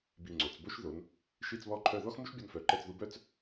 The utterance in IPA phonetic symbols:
b i˧˩ ŋ͡ǀ o˩˧ t͡s b o˥ ʃ ð o˩˧ n | ʃ i˥˧ t͡s β ɔ˥ ǃʰ œ˥˧ ð ɔ˥ x m u˥ ʃ bʲ ɔ˧ n f œ˩˧ ǃ ɛ˧ t͡s ð u˧ b œ˥˧ t͡s

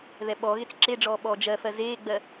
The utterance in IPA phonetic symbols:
ð ɛ ɓ ɔ ɣ e t͡s ǁ e ɖ͡ʐ ɔː ɓ ɔː d͡ʒ ɜ f ɜ z eː ɡ͡b ɜ

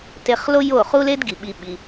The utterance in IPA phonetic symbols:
t e˧ χ l o˦ j o˦˨ χ u˦ l e˦ d ɡ i˨ ɓ i˧ ɓ i˧

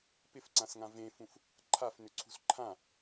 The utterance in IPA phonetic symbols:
p ɪ f ǀ ã s ŋ ã v ẽ f ũ f | ǃʰ a f n ʏ ǀʰ ṳ s ǃʰ ã

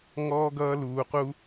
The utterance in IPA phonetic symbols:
ŋ ɔː˥ ɡ ʌː˥ l uː˦ q u˥

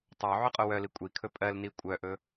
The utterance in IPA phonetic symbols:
tˤ o ʕ ɵ qʼ o w œ l i kʷʼ i kʰ ɵ pʼ ɜ l n i kʷʼ œ ʔ ɵ

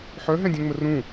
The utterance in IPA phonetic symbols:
ħ œ ɦ ɛ̃ dʲ œ̃ ŋ͡m ə r ũ

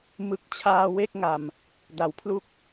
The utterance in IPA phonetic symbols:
m ɯ˦˥ k̚ t͡ɕʰ aː˧ w e˥˩ k̚ ŋ a˨˩ m | d a˩˦ w pʰ l u˥˩ k̚

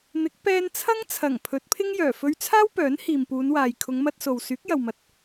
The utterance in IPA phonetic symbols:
n̪ ɪ˨˥ k̚ p ɛː˧ n t͡sʰ ɐ˥ ŋ t͡sʰ ɐ˨˩ ŋ pʰ ɵ˨˥ t̚ pʰ ɪ˥ ŋ j œː˨˩ f ɵ˧ ɥ t͡sʰ aː˥ w p œː˨˥ n h iː˨ m p uː˨˧ n w aː˨ j kʰ ʊ˨˧ ŋ m ɐ˧ t̚ s o˨ w s yː˨˥ k̚ j ɐ˨ w m ɐ˨ t̚

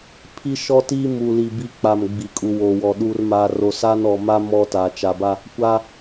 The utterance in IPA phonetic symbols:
pʰ i˦ ʃ ɔ˦ t i˦ m u˨ l i˨ b i˦ k͡p a˨ m ɡ͡b i˨ kʼ u˨ w o˨ w ɔ˨ ɗ u˨ r m aː˨ r o˨ s a˦ n ɔ˨ m a˦ m ɔ˦ t a˨ t͡ʃ a˨ b a˦ | kʷ a˦

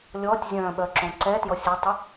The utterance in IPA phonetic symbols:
lʲ ɔː tʲ zʲ œ̃ː ɓ œ ǁ õ ǀ ɛ t j ɔ sʲ œ tˤ ɪ

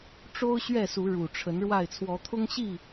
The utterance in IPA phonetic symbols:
ʈ͡ʂ o˦ ʊ̯ ɕ ɥ ɛ˥˨ s u˨˦ ɻ u˨˩ ʈ͡ʂʰ ə˨˦ n ɻ w a˥˨ ɪ̯ t͡sʰ w ɔ˨˦ t̪ʰ ʊ˦ ŋ ɕ i˥˨

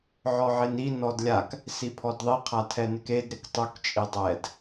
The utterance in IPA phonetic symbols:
ʕ ɔ ʕ e n i n ɔ d lʲ a k | s i pʰ ɔ d ðˤ i qʰ a tʰ ɛ n ɪ k e d ɾ ɪ k tˤ u k t͡ʃʼ i dˤ ɛ d

